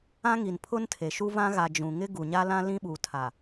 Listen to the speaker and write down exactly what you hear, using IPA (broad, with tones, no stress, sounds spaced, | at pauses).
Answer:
ã˦ ŋ i˨ n pʰ ʊ˦ n tʰ e˨ ʃ u˦ v ã˦ ɣ a˨ d͡ʒ ũ˨ ŋ ɪ˦ ɡ u˨ ɲ a˦ l ã˦ l ĩ˦ ɓ uː˨ tʰ a˨